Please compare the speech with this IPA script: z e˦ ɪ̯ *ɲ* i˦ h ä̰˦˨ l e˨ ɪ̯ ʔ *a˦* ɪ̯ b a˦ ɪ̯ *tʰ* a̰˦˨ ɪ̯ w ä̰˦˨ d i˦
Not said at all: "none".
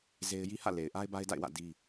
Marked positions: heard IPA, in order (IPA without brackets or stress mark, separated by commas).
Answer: j, a˦, d